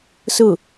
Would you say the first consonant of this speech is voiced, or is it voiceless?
voiceless